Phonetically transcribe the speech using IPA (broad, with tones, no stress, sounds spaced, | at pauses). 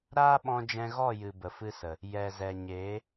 ɾ aː˦ ɓ ɔ̃˧ d͡ʒ ɛ̃˧ ɣ ɔ˦˨ j ɨ˨ b ə˨ f ɨ˧ s ə˨ | j ɛ˨ z ɛ˨ ɲ eː˨˦